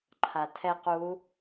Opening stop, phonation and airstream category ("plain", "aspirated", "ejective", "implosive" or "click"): click